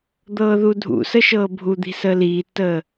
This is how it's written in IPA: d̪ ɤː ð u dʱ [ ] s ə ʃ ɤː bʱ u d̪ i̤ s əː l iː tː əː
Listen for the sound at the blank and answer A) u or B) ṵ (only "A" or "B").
B